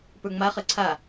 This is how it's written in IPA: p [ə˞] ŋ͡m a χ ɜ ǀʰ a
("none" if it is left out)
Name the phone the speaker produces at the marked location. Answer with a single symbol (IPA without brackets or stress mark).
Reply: ə˞